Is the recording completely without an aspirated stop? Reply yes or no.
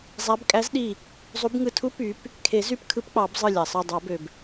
no